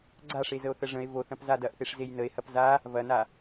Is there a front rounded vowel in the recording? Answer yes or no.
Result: no